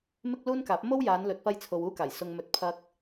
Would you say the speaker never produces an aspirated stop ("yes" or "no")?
no